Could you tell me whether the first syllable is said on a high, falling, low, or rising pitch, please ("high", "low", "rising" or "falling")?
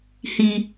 low